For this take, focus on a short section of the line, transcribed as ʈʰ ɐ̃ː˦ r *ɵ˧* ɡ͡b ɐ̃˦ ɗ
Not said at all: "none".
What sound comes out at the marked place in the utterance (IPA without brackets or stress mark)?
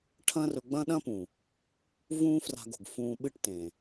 ɵ˧